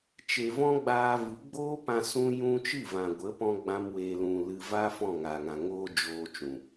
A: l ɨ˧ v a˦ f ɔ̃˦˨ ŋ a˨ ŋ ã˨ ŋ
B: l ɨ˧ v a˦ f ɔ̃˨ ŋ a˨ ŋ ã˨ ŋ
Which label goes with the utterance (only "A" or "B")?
A